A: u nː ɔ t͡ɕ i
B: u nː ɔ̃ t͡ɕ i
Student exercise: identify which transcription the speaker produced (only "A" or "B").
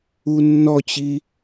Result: A